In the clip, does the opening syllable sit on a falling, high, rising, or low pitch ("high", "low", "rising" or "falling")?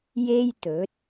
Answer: high